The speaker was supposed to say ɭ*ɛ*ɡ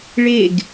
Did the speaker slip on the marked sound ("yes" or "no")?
yes